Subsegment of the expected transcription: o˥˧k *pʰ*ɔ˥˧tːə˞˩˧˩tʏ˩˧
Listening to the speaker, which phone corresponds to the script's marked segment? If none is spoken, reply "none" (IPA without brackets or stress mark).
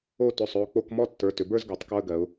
m